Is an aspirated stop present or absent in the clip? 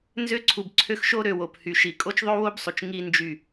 present